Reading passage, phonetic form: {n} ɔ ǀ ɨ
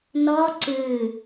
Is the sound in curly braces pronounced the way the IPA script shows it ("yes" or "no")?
yes